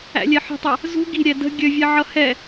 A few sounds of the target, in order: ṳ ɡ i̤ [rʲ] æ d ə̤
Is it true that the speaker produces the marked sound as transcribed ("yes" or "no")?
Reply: no